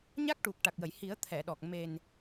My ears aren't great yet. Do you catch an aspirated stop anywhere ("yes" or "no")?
yes